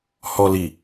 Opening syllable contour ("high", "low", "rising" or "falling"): low